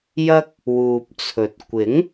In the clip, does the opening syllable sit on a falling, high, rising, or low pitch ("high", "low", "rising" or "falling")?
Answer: high